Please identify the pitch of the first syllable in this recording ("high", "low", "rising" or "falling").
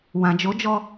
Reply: low